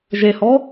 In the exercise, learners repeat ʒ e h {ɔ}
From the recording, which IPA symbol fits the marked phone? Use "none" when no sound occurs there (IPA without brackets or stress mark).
ɔ